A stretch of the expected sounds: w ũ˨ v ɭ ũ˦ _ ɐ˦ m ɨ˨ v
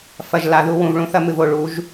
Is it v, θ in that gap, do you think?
θ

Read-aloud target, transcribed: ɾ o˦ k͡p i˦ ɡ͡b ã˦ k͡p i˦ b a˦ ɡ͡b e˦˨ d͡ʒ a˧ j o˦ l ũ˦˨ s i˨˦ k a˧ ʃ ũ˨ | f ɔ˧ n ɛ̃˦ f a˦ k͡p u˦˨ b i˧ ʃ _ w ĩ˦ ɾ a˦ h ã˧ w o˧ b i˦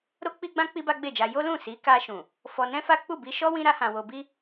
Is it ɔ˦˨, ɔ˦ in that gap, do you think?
ɔ˦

